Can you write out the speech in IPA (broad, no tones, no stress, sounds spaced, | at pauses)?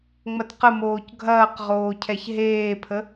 ŋ͡m ɐ t q ə m oː c ɡʱ ɐː q ʁ oː cʰ ɛ ç ɦ eː pʰ ə